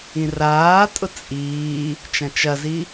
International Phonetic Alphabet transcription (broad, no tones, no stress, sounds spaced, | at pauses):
ĩ r aː tʼ ʊ t͡sʼ iː | t͡ʃ ɐ̃ t͡ʃ ɐ z i